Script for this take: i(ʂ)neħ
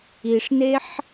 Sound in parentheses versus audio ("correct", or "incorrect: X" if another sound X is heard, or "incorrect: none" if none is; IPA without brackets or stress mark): correct